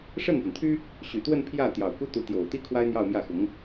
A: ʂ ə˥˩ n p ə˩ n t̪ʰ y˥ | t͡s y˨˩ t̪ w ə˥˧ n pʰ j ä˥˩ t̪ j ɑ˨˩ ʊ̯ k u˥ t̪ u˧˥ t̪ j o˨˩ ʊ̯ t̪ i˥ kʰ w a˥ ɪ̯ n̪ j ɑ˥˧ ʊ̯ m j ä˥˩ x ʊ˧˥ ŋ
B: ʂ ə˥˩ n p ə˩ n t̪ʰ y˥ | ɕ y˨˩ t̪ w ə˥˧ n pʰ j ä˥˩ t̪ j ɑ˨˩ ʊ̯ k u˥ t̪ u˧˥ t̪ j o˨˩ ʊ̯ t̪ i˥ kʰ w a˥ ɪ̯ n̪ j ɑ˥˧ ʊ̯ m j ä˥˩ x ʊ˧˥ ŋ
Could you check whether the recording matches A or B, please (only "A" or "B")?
B